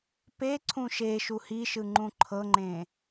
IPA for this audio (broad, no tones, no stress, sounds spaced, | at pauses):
p e ǀʰ ũ ʃ e ʃ u h i ʃ ɯ ŋ͡ǃ ũ ǃʰ ɤ ŋ͡ǃ ẽ